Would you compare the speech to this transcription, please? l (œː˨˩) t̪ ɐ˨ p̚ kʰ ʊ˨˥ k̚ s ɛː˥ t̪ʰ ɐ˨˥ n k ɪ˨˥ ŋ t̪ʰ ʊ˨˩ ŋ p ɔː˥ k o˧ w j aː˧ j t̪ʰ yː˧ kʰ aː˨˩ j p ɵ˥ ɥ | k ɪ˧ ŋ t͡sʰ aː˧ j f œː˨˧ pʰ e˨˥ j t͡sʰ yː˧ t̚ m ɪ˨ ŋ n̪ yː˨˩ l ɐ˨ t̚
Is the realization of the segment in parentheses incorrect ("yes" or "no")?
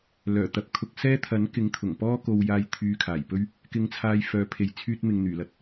no